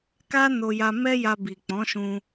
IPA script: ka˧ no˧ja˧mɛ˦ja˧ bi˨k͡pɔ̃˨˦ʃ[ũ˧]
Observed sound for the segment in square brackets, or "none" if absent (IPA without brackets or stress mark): ũ˧